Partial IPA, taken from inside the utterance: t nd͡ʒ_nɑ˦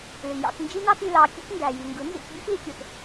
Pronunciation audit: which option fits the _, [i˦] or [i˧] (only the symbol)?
i˦